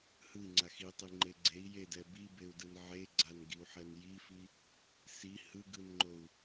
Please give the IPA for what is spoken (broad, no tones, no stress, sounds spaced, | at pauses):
h ɯ i̯ ŋ͡ǀ a x i tˤ i ŋ͡ǃ e ɡ͡ǀ e i̯ j e d ɛ b i b e u̯ d ɯ n ʕ e ɡ͡ǀ a n ɡ i u̯ ħ ɛ n j i f i | s i h ɯ ɡ ɯ n ŋ͡ǃ o u̯